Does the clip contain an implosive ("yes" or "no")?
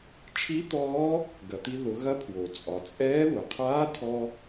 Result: no